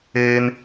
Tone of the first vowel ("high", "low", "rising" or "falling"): high